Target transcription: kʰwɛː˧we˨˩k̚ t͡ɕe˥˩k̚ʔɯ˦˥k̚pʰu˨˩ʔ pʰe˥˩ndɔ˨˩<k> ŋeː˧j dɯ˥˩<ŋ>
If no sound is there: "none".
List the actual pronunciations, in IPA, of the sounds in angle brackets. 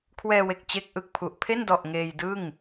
ʔ, ŋ

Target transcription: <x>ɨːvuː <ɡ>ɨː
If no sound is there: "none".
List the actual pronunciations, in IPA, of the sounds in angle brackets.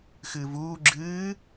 x, ɡ͡ǁ

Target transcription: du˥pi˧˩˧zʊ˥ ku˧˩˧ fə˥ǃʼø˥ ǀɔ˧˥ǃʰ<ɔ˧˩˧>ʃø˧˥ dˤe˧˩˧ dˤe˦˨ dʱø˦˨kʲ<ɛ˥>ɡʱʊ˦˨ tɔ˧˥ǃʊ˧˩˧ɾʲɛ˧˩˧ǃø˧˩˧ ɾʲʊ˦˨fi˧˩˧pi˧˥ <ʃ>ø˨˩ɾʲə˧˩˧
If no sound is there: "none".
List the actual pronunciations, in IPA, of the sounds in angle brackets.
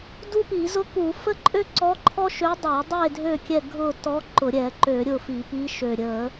ɔ˥, ɛ˦˨, ʃ

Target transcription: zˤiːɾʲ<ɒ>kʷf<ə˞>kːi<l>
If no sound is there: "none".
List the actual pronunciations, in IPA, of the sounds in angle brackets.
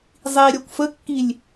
ɒ, ə, lʲ

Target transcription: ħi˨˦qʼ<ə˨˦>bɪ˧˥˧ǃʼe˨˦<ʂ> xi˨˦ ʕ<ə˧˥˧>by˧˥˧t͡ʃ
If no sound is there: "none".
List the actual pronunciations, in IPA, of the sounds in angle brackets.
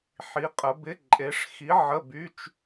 ə˨˦, ʂ, ə˧˥˧

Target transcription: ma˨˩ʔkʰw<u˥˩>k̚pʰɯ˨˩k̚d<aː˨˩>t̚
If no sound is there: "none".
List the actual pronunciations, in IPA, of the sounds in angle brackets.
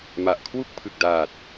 u˥˩, aː˨˩

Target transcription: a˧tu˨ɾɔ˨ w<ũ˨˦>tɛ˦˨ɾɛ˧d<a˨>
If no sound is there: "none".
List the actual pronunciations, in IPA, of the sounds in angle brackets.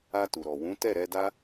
ũ˨˦, a˦

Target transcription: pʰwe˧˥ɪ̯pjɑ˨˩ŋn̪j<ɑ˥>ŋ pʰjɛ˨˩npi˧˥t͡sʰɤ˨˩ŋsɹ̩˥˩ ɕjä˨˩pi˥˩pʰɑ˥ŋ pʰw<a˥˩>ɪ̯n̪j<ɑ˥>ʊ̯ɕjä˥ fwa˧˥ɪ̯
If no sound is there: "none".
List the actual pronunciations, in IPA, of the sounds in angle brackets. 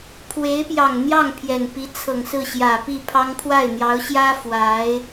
ɑ˥˩, a˥˩, ɑ˧˥

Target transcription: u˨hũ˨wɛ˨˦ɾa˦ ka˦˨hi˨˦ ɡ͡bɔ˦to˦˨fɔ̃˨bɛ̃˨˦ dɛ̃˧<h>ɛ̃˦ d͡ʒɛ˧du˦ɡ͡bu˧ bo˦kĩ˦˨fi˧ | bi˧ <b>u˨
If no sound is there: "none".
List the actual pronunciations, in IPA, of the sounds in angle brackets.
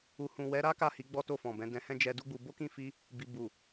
h, b

